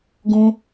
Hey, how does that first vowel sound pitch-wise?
low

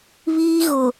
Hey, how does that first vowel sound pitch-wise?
high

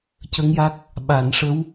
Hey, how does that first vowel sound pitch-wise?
rising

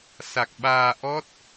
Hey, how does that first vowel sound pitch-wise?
low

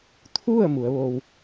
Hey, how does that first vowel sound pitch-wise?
falling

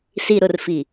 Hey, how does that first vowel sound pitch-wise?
low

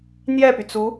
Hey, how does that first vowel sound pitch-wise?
falling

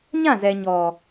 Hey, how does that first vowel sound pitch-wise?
falling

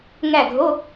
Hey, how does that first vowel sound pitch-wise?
falling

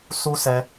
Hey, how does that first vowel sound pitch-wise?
high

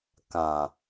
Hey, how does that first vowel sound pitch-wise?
low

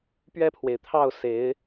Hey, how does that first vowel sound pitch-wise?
falling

